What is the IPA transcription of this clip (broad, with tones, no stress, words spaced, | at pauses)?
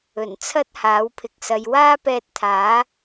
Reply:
ɵ˨˩n t͡sʰɐ˥t̚haː˨˥wpʰɪ˨k̚sɐ˨˧j waː˥pɛː˧t̚t̪ʰaː˨˥